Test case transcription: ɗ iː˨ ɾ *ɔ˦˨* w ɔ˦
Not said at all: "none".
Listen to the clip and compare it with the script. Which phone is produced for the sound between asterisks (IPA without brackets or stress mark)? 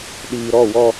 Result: ɔ˦˨